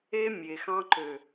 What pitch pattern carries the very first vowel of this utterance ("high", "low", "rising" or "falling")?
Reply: high